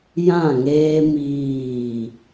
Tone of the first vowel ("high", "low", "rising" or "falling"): falling